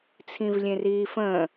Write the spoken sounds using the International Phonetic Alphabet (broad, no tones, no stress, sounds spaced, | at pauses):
t͡sʰ ĩ v lʲ ẽ r iː f ə̃ː